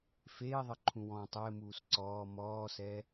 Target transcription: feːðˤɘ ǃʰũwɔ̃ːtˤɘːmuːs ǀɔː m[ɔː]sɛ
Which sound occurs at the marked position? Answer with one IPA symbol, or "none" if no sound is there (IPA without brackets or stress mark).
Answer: ɔː